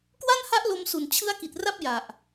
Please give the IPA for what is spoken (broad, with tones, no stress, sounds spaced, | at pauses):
k w a˥˩ n h a˦˥ ʔ l o˧ m s u˨˩ n t͡ɕʰ ɯ˦˥ a̯ k i˨˩ t̚ r a˥˩ p̚ j a˨˩ ʔ